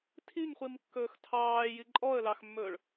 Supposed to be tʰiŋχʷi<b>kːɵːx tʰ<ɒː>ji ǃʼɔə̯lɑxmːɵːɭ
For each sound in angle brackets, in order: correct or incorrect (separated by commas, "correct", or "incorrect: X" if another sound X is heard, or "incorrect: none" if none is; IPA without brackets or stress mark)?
incorrect: m, incorrect: ɑː